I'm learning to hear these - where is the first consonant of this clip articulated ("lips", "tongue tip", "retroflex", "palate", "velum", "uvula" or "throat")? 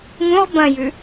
velum